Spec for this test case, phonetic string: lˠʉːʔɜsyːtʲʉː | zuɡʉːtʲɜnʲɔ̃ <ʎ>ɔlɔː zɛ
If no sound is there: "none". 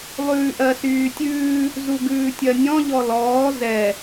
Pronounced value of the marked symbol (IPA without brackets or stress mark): ʎ